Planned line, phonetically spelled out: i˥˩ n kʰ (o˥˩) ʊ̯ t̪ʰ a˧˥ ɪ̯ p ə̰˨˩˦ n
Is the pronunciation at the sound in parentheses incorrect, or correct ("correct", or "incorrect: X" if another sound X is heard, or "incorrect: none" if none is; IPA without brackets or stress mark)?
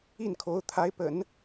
incorrect: o˧˥